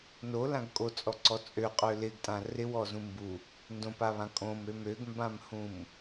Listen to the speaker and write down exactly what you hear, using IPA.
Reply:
n o l ã ɡ kʼ o t͡sʼ ɔ ǀ ɔ t͡sʼ ø qʼ ø l ɪ ɡ tʼ ã r ɪ w ɔ z ũ m b u | n d õ p a β ã kʼ õ m ø m ø ɡ m b ã m h ũ m

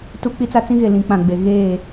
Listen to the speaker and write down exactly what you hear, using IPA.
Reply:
t u˦ k͡p i˦ t͡s a˦ t͡s ĩ˦ ɣ e˨ l ĩ˨˦ k͡p ã˨ ɡ͡b e˨ ɣ eː˦˨

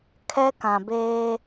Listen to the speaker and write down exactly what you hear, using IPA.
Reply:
kʰ ɛ˦ k ã˨ b eː˦

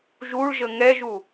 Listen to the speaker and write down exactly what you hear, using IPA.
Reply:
ʒ u ɭ ʒ ə ŋ ɛ ʒ u

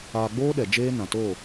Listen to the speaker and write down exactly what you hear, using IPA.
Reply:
aː˧ ɡ͡b oː˦ ɗ ɛ˧ d͡ʒ eː˦ n ã˨ t oː˦˨

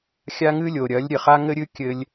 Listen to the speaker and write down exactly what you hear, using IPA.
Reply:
xʲ a˦ ŋ ɨ˦ lʲ o˨ ɾʲ ɐ˨˦ lʲ ɾʲ ɘ˨ χ a˦ ŋ ɘ˦ ɾʲ ɨ˦ kʲ ɘ˧ lʲ

